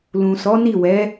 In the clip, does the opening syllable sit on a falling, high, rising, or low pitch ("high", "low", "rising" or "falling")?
low